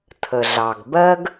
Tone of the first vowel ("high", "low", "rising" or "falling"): low